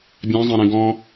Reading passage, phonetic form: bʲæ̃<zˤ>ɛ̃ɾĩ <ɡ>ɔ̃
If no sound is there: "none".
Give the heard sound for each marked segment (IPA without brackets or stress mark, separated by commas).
zˤ, ɡ